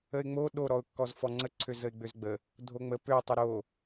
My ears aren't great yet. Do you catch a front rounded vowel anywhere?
yes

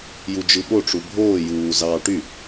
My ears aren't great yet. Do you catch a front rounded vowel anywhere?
yes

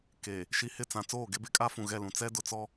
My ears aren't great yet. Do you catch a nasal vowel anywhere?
yes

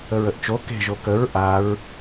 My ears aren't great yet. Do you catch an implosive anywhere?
no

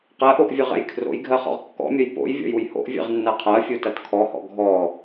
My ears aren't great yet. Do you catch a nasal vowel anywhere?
no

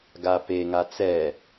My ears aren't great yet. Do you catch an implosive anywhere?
no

